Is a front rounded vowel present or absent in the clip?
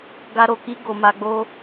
absent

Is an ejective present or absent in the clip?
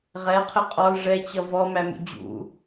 present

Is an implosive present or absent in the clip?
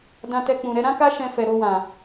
absent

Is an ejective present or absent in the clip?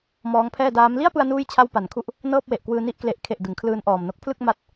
absent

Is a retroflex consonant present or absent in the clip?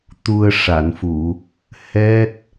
present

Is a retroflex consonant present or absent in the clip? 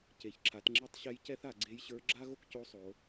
absent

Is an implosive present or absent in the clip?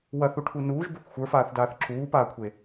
absent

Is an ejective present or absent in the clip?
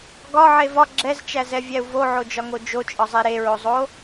present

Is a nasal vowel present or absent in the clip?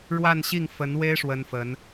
absent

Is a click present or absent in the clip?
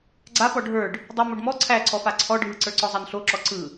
present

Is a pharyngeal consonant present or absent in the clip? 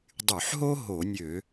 present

